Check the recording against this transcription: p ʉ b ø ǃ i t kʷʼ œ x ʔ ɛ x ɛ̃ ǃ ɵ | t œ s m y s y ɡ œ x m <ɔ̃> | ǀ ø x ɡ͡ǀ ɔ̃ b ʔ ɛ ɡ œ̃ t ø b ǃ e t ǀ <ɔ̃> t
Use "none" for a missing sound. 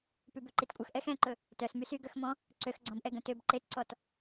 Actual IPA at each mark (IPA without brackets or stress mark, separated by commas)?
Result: ɔ̃, ɔ